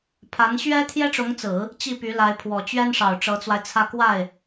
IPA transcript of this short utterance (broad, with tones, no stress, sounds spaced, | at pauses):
pʰ a˧˥ n ɕ ɥ ɛ˥ t̪ʰ j ɛ˥ ʈ͡ʂ ʊ˧˥ ŋ t͡s ɹ̩˨˩˦ | t͡ɕ i˥˩ p y˧˥ l a˧˥ ɪ̯ pʰ w ɔ˨˩ t͡ɕ ɥ ɛ˥ n ʂ ɑ˨˩ ʊ̯ ʈ͡ʂ ɤ˧˥ t͡s w a˧ ɪ̯ t͡sʰ ä˥˧ k w a˥˩ ɪ̯